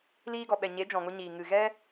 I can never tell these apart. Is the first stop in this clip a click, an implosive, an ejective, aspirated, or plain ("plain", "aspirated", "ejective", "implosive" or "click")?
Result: plain